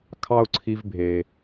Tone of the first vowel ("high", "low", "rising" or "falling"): high